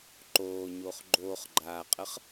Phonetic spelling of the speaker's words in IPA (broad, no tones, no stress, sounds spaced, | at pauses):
ǃ oː ɲ o χ ɡ͡ǃ oː χ ɡ͡ǃ aː qʼ ə χ